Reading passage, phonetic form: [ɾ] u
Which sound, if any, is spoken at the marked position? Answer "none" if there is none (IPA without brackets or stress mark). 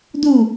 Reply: d